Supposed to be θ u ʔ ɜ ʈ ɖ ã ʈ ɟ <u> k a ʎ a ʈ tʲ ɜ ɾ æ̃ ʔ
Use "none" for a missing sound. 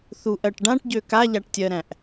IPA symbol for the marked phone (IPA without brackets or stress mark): ø